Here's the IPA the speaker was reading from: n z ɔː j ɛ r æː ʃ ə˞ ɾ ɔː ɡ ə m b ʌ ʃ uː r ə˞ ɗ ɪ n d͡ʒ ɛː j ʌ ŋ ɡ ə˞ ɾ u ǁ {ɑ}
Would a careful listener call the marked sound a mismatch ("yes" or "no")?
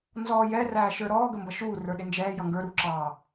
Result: no